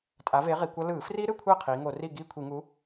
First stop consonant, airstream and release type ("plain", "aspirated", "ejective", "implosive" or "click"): ejective